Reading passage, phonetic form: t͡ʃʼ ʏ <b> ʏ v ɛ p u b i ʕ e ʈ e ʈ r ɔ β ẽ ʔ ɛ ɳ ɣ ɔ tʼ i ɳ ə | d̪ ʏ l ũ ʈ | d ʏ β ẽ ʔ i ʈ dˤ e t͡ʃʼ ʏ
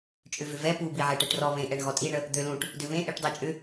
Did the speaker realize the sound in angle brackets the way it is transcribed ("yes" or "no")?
no